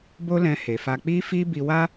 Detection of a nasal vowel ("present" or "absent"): present